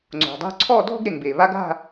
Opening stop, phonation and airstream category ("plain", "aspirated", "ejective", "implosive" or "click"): click